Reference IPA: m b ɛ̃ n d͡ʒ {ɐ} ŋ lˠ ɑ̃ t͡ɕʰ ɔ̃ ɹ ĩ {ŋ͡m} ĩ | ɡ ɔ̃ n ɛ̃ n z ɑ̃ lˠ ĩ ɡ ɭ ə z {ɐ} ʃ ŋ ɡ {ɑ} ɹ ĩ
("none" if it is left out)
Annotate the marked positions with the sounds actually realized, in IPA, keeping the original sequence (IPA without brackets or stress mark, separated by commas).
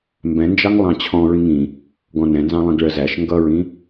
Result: ɑ, ŋ, æ, ʌ